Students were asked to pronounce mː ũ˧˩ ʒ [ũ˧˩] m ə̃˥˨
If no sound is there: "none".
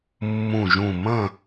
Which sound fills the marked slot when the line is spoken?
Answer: ũ˧˩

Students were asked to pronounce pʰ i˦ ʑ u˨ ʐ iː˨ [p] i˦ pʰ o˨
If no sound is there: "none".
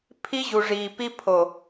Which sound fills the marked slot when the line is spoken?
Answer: p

